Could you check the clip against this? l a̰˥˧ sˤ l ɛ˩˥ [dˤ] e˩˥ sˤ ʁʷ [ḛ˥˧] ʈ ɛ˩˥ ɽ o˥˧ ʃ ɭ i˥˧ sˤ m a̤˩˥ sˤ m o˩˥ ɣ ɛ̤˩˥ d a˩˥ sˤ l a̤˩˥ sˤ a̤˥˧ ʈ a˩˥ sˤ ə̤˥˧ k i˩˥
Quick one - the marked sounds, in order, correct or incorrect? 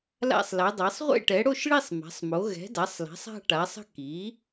correct, correct

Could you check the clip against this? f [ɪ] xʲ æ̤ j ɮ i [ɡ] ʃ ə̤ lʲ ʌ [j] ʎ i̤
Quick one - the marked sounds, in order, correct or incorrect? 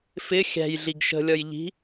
correct, correct, correct

